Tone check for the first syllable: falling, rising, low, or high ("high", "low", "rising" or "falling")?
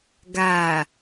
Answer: low